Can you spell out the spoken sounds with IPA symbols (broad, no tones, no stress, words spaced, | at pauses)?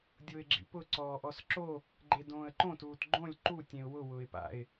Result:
dʲʊːɪ̯ɡ͡ǁḭpʊ ǀɔːʔɔsǁo | ɡ͡ǃedõːə̯ǃõtuːt ɡ͡ǃõlʲ ǃutʲẽʊ̯ wʊ wʊːɪ̯pa̰ɪ̯